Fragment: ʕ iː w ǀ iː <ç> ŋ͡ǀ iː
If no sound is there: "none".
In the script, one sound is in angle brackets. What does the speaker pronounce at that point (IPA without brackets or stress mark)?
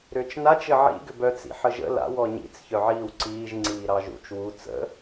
ʒ